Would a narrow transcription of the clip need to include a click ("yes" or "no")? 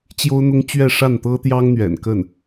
no